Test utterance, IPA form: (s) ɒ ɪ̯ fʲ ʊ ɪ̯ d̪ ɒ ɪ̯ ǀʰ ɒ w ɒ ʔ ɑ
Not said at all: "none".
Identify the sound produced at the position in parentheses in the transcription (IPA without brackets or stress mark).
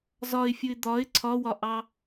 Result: z